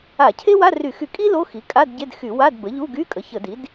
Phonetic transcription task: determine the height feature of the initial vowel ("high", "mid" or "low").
low